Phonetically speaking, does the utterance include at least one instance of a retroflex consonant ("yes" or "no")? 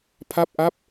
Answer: no